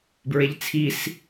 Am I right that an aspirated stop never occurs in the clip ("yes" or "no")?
no